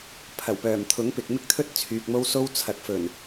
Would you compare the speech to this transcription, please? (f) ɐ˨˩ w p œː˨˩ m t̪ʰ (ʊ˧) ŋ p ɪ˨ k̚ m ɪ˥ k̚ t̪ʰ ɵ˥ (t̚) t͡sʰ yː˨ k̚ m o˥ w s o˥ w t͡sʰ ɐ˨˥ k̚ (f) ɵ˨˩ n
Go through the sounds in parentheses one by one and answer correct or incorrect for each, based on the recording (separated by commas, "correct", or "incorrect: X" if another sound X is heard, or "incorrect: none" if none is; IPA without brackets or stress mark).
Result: incorrect: pʰ, incorrect: ʊ˨˥, correct, correct